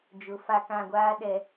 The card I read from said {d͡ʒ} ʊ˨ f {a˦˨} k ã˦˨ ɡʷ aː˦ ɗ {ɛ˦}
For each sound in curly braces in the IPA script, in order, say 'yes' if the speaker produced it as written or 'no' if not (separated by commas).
yes, yes, no